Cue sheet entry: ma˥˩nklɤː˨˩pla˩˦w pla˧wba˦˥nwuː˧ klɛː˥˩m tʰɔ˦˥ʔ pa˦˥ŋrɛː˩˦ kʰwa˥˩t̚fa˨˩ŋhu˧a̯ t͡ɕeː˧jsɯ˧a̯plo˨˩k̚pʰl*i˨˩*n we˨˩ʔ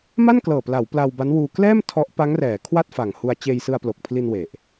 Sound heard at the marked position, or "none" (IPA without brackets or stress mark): i˧